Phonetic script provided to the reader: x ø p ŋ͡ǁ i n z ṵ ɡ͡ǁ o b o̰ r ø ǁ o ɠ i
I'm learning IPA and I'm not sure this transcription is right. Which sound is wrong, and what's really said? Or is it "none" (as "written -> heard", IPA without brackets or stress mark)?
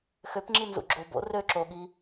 none